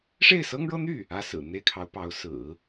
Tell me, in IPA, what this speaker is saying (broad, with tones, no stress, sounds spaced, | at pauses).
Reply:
ʂ e˥˩ ɪ̯ s ɤ˥ ŋ ɻ ɤ˥ n̪ y˥˩ | ä˥ s ɹ̩˨˩ n̪ e˥˩ ɪ̯ kʰ ɑ˧˥ ʊ̯ p ɑ˧˥ ʊ̯ s ɹ̩˨˩˦